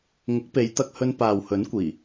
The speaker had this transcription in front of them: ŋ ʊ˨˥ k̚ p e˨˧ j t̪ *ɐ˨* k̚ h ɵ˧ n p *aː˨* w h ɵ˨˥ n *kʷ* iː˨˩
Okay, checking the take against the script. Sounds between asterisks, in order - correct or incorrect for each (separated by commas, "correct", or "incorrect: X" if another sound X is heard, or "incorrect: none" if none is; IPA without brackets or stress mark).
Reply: incorrect: ɐ˧, correct, correct